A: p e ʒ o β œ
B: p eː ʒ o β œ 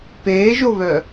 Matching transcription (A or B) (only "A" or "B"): B